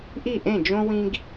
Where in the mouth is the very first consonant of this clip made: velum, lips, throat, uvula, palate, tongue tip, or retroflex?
throat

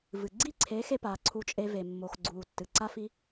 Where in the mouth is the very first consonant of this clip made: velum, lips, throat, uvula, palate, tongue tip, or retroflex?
lips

